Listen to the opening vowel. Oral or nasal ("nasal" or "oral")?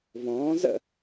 nasal